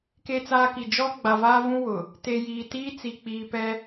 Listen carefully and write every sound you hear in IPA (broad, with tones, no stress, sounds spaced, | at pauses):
k e˦ t͡s aː˦ k i˨ d͡ʒ ɔ˦ ɡ͡b a˨ v aː˦ v ũ˦ w ʊ˨ | t e˨ j iː˨ t iː˦ t͡s i˨ k͡p iː˨ p ɛ˦